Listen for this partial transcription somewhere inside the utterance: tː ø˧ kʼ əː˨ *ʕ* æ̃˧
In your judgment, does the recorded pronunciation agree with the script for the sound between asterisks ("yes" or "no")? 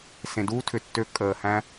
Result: no